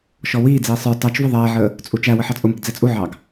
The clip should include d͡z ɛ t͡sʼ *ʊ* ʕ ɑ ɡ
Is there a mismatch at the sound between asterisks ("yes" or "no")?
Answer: yes